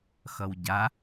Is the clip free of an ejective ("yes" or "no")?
yes